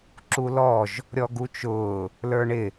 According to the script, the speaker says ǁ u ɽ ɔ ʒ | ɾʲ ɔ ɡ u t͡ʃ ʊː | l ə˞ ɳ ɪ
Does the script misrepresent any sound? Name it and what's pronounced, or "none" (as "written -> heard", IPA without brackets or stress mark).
ɽ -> l